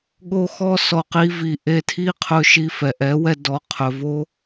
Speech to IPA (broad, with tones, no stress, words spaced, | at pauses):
ɠo˦xɔ˦ sɔ˧qi˦ vi˨ ʔe˧tʰi˦qʰɵ˧ʃi˧ fɛ˨ʔɛ˨˦wɛ˧dɔ˨˦ qʰɵ˨vo˦